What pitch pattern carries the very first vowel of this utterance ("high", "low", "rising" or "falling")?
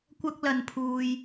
high